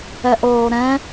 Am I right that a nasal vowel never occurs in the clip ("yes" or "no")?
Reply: no